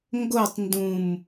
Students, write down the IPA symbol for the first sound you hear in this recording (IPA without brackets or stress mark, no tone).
ŋ